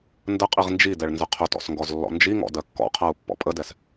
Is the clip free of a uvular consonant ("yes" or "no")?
no